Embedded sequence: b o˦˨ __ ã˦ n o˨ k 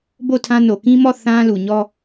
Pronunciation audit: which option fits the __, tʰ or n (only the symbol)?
tʰ